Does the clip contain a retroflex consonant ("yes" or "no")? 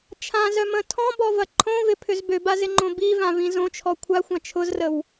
no